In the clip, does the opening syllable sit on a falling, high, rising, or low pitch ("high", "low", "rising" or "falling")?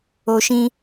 low